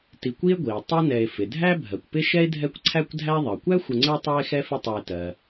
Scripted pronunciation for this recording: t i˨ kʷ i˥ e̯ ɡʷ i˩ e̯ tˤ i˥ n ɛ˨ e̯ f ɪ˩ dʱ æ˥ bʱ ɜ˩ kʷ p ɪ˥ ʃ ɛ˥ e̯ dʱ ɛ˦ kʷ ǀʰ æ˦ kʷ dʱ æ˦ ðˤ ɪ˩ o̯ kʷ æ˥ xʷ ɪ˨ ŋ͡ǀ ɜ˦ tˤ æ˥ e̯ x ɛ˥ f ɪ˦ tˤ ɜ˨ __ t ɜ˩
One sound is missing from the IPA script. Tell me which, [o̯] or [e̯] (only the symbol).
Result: e̯